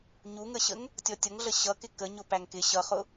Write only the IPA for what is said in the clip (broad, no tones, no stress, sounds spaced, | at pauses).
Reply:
ɲ u ŋ ə ɕ ə ŋ | tʲ ɔ tʲ ʌ ŋ ɮ ə ɕ ʌ k ɪ k ə ɲ ʊ p æ ŋ k ɪ ɕ ʌ χ ʊ